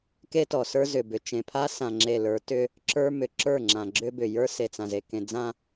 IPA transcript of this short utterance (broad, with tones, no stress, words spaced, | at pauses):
ke˦tɔ˨sə˞˦ zʏ˨bʏ˨ t͡ʃẽ˨pʰa˦sã˨ŋ͡ǁe˨ lə˞˨˦tʏ˦ | ǁə˞˦mʏ˨˦ ǁə˞˦˨ŋ͡ǁã˨ɡ͡ǁʏ˦bʏ˨ jə˞˦ se˨t͡sã˨ze˨ kẽ˨d͡zã˦